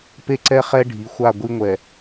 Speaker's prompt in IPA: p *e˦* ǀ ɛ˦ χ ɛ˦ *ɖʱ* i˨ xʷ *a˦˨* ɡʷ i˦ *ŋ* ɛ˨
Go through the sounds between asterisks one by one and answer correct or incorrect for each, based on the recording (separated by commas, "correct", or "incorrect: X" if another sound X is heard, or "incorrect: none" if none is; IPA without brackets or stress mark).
correct, correct, correct, incorrect: ŋʷ